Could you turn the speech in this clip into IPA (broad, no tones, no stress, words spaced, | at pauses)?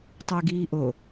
tˤui̯ɡiːʔo